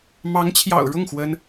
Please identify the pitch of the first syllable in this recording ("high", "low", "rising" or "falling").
rising